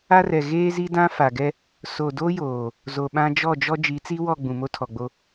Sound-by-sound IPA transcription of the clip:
a˦rɛ˨ ɣeː˦zi˦dã˦ fa˨ɡɛ˦ | so˨do˦joː˨ | zo˨ɓã˦ d͡ʒɔ˦˨d͡ʒɔ˦ d͡ʒi˨˦t͡si˦wɔ˦˨ ɡ͡bũ˨mo˦tʰɔ˨ɡ͡bo˦

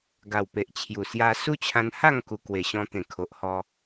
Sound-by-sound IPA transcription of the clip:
ɡa˨˩w pe˨ʔt͡ɕʰju˨˩ sja˧ su˦t͡ɕʰã˧n ha˥˧ŋku˨˩ kwe˨˩ɕɔ̃˧ t̪ẽ˨˩ kʰo˨ʔhɔ˧

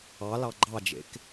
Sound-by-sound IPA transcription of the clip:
ɑlɑ ɡ͡ǃɑd͡ʒḛk

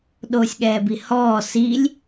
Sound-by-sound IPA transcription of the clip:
ɗoːsʲɠɛːbihɔː silʲ

